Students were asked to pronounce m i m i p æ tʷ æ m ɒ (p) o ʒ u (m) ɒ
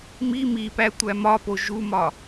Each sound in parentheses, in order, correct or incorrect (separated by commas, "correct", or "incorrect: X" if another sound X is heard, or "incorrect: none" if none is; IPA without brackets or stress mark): correct, correct